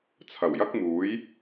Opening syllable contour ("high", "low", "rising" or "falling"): low